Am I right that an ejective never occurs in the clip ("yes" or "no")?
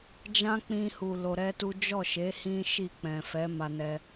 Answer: yes